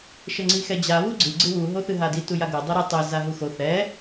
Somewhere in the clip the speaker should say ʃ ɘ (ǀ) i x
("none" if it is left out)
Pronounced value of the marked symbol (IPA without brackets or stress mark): ŋ͡ǀ